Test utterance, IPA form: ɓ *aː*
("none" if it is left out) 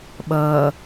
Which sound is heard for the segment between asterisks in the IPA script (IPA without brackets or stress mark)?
ʌː